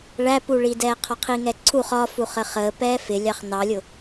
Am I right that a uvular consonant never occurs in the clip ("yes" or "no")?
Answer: no